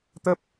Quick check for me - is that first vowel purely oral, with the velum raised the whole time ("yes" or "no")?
yes